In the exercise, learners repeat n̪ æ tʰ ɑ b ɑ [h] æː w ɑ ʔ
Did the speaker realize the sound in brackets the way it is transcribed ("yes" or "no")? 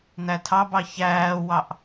no